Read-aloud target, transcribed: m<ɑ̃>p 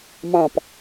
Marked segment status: correct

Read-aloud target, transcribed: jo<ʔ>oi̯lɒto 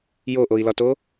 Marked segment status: correct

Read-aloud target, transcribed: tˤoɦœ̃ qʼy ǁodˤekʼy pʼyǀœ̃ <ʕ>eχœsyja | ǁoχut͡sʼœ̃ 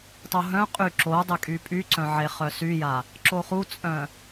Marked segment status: correct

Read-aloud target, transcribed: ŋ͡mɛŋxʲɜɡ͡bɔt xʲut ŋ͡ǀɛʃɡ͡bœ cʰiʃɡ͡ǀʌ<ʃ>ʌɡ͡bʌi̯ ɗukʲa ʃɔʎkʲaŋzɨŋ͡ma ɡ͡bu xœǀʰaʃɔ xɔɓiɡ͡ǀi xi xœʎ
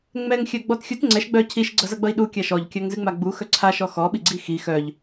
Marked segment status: incorrect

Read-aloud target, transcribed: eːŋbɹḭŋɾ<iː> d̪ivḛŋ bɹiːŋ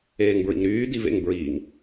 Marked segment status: incorrect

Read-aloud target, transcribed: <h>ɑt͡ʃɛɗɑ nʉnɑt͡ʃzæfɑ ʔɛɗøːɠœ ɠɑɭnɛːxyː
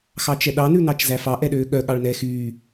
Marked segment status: incorrect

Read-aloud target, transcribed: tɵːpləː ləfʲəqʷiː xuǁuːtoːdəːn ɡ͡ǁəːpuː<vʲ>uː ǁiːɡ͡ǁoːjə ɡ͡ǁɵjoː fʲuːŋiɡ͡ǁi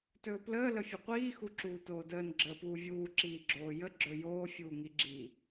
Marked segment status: correct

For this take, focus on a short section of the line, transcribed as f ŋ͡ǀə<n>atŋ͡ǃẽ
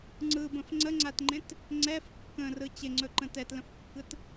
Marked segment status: incorrect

